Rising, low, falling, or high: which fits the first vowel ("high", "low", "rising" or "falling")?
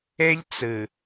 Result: high